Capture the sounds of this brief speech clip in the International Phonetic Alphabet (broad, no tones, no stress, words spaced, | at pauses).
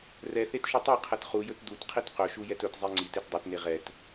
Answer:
rɛ θetʃutˤeqʰɛt χujɵt dutqʰit qɵʃu jɛtɵtzˤe ŋ͡ǀit etdˤɛtne ʁɛt